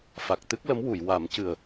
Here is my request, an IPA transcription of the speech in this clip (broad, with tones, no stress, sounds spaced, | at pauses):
f a˨˩ k̚ t̪ ɨ˦˥ k̚ l ə˧˥ m w u˨˩˨ j w a˨˩˦ m c ɨ˨˩ ə̯